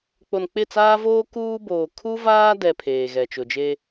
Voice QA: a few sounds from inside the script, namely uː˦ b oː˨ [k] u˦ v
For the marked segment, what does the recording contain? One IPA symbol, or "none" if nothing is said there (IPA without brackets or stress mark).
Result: kʰ